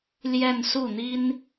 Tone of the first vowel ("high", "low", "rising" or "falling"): falling